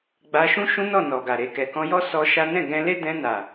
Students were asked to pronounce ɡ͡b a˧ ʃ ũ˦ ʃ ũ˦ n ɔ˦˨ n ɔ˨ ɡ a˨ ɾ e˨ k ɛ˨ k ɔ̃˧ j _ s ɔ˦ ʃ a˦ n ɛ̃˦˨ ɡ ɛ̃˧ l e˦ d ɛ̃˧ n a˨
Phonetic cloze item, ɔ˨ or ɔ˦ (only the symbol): ɔ˦